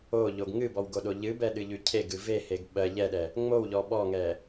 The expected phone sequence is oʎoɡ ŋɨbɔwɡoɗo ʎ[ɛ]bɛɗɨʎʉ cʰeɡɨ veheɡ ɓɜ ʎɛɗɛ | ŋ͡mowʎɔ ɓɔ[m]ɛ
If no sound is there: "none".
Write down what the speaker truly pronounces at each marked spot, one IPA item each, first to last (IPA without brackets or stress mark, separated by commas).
ɨ, ŋ